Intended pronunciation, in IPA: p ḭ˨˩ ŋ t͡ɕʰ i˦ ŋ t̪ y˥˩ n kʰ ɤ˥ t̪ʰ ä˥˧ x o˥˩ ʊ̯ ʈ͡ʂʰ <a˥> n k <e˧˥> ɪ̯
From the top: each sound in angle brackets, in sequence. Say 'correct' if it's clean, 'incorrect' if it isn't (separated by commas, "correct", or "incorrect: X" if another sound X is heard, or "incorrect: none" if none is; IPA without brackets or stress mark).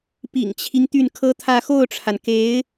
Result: incorrect: a˩, correct